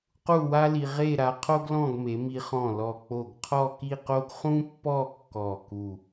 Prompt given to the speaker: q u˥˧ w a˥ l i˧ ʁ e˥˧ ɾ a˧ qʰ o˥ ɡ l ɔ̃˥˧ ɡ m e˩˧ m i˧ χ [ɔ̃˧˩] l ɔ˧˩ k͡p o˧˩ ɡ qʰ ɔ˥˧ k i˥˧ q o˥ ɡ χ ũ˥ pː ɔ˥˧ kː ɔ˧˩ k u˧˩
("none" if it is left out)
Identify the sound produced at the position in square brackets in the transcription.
ɔ̃˧˩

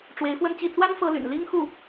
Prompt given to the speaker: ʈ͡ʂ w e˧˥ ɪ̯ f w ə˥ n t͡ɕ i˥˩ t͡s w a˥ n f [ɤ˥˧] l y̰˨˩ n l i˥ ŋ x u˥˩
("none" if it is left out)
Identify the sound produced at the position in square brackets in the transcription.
ɤ˥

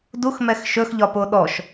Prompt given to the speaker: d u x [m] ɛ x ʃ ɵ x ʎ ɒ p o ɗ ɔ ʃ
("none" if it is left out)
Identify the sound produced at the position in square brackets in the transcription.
m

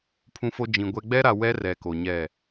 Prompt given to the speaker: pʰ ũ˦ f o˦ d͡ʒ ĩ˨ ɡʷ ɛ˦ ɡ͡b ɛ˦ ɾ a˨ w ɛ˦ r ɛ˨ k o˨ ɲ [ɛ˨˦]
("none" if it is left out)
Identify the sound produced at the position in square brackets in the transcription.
ɛ˦˨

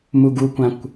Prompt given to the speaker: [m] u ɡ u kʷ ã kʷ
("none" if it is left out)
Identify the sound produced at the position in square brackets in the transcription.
m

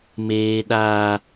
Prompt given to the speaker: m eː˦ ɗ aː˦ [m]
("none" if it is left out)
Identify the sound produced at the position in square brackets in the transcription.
none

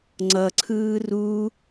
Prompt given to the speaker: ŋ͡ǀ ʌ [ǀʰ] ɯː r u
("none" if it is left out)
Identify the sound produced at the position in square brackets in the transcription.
ǀʰ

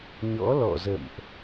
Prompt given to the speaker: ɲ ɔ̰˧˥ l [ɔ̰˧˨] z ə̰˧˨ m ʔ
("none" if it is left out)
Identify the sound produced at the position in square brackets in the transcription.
ɔ̰˧˨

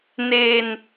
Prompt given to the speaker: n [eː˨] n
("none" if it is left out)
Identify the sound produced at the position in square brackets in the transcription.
eː˨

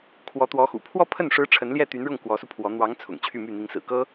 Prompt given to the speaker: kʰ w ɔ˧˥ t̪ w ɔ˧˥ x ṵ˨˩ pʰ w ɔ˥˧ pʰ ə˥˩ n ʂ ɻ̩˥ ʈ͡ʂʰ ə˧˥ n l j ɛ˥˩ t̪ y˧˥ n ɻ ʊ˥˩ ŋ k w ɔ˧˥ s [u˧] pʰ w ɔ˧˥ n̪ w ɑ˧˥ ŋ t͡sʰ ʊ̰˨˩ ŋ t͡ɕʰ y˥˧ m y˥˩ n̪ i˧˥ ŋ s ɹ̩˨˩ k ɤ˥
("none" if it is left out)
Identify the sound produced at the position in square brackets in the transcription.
u˧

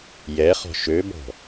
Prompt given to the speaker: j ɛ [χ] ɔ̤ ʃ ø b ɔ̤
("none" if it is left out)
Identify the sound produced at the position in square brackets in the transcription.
χ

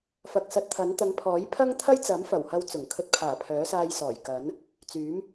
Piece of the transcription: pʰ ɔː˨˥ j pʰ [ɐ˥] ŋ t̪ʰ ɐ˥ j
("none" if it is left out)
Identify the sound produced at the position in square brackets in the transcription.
ɐ˥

